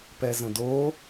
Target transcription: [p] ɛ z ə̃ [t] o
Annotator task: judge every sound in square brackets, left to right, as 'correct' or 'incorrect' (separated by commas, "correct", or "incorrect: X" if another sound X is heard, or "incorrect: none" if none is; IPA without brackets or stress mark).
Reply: correct, incorrect: d